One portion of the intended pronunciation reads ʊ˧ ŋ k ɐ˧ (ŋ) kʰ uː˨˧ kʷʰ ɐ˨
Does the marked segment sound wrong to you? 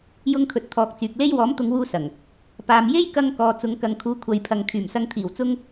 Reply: no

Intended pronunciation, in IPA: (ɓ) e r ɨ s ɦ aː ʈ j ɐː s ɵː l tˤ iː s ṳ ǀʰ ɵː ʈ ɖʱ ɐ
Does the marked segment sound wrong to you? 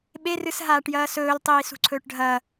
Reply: no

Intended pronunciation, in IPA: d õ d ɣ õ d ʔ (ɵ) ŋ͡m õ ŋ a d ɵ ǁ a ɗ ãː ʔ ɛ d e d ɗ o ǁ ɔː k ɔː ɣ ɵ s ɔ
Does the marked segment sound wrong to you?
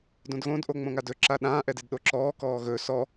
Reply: yes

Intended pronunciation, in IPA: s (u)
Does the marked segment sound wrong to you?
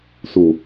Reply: no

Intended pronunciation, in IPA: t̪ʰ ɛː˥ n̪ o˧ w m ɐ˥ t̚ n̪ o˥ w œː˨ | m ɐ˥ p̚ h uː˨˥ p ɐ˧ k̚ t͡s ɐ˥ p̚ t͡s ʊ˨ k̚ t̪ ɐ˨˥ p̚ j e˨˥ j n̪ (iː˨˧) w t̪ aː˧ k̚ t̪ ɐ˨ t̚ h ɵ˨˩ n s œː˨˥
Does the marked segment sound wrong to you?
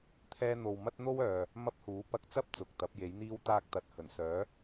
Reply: yes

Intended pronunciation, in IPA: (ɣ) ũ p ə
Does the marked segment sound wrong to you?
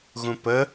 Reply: no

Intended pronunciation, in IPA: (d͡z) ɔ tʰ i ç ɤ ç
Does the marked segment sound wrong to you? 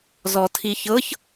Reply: yes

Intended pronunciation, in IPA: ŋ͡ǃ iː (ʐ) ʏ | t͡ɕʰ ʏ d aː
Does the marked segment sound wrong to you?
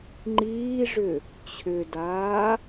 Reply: no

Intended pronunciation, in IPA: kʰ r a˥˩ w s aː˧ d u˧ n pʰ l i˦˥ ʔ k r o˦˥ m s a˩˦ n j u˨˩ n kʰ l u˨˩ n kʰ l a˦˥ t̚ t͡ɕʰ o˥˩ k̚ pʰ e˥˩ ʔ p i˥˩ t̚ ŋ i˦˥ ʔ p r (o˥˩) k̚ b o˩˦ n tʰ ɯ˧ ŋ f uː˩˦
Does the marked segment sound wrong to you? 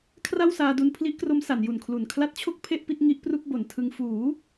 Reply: yes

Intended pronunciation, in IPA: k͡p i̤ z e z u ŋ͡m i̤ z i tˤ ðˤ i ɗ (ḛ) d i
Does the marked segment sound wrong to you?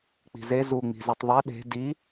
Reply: yes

